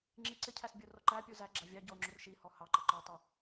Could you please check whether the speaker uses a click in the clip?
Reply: yes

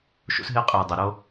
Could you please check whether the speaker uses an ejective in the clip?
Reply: yes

